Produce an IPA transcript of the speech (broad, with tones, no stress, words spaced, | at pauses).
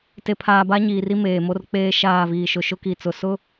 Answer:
te˨pʰaː˨ ba˦ɲiː˨ri˦ meː˨mo˦rk͡peː˦ʃaː˦˨ viː˨ʃʊ˨ ʃʊ˦ki˨t͡sʊ˨ sʊ˦